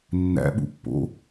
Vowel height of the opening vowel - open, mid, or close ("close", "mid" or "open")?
open